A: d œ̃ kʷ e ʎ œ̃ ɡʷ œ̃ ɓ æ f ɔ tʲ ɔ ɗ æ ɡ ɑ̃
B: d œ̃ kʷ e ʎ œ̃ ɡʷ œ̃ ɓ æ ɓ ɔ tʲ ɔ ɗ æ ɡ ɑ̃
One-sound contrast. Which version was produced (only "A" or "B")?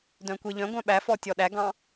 A